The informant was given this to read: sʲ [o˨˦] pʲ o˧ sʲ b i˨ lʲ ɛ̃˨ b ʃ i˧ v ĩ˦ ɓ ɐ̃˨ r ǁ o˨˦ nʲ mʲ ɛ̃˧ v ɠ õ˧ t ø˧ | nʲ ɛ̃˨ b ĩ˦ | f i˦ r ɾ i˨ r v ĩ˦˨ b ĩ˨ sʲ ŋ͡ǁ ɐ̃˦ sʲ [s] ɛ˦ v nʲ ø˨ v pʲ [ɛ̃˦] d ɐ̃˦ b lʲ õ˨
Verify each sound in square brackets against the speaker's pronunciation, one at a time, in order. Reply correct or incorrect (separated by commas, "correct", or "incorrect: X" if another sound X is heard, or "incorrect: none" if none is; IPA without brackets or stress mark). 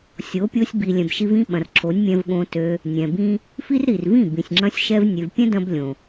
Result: correct, incorrect: ʃ, correct